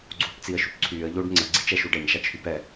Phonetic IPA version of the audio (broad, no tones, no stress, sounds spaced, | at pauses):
ɡ͡ǀ uː p t͡s i ə̯ ʃ y p ǀʰ yː ə̯ ʎ oː ɖ ŋ͡ǀ ə ɡ͡ǀ i t͡ʃ ɛ ʃ u ɖ ɛ ɲ ʃ a t͡ʃ h y p ɛ